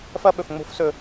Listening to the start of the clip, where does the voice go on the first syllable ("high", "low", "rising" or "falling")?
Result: high